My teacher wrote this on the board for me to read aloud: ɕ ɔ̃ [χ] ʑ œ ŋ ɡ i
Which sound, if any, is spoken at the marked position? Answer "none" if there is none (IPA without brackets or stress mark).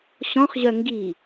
χ